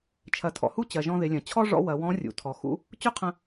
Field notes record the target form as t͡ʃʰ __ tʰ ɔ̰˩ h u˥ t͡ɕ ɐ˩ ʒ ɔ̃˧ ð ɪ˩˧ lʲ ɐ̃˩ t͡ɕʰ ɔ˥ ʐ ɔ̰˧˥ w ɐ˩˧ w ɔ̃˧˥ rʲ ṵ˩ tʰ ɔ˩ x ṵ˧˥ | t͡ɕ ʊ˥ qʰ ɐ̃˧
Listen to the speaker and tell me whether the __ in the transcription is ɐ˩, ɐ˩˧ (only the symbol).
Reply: ɐ˩˧